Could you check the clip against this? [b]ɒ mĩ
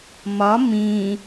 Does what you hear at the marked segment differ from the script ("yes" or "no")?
yes